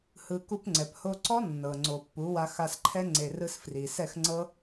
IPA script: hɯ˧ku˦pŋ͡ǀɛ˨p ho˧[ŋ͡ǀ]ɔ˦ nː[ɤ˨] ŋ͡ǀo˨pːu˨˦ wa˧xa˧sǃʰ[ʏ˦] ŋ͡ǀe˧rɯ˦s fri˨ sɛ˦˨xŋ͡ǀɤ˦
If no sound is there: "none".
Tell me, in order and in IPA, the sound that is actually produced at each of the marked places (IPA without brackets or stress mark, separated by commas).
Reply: ǀ, ɤ˨, ɛ˦